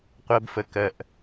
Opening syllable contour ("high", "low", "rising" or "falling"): high